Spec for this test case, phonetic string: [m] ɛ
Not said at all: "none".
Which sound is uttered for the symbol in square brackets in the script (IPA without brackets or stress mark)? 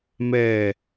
m